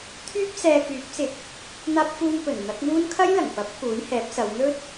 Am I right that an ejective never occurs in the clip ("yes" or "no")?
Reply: yes